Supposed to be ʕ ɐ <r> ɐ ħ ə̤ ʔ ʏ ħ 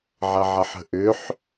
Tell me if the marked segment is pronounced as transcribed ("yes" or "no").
no